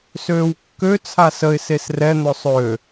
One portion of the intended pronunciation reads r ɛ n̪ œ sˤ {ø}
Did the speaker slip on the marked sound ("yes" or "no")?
no